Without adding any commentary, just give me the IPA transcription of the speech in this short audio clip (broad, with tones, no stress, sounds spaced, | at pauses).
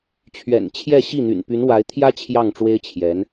t͡ɕʰ ɥ ɛ̰˨˩ n t͡ɕʰ j ɛ˥˧ ɕ i˥˩ n̪ y̰˨˩ n p y˧˥ n w a˧˥ ɪ̯ t̪ʰ j ä˥ t͡ɕʰ j ɑ˥˩ ŋ ʈ͡ʂ w e˥ ɪ̯ t͡ɕʰ j ɛ˧˥ n